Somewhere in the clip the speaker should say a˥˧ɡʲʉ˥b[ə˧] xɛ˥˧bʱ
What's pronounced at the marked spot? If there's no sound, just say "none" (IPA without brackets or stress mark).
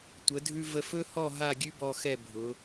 ɔ˧